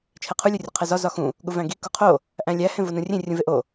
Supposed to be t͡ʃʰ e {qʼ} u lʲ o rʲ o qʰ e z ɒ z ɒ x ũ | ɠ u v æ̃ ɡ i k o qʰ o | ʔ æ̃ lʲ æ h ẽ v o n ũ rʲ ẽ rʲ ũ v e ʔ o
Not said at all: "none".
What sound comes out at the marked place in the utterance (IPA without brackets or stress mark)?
qʰ